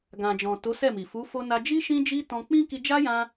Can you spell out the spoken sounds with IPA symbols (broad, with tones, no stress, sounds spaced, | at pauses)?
ɡ ã˨ d͡ʒ ɔ̃˨ t o˨˦ s ɛ˦˨ m i˨ f u˨˦ f o˧ n a˧ d͡ʒ i˦ ʃ ĩ˦ d͡ʒ i˦ t ɔ̃˧ k͡p ĩ˦ k i˧ d͡ʒ a˦ j ã˧